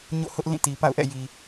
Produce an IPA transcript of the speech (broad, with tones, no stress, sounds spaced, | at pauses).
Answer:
ɲ o̰˦˨ h ʊ˦ ʔ l ĩ˦˨ t i˨ p a̰˦˨ ʊ̯ ʔ ɛ̰˦˨ j i˨